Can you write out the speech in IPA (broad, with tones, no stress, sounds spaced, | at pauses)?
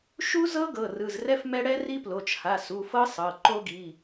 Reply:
ʃ u˦˥ z ɤ˦˥ ɡ ɤ˩˧˩ r ɯ˩˧˩ z r ɛ˦˥ f m ɛ˦˥ ɽ ɛ˦˥ r i˦˥ p l o˩˧˩ t͡ʃ h a˩˧˩ s u˩˧˩ f ɤ˦˥ sˤ ɤ˩˧˩ ǃ o˦˥ ɡ i˩˧˩